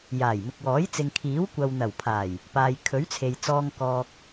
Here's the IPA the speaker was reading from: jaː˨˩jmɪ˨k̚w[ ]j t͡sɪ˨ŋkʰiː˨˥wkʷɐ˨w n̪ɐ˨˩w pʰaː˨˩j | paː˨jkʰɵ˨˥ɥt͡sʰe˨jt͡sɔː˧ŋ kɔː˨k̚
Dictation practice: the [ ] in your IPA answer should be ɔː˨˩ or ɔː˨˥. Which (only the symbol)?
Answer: ɔː˨˥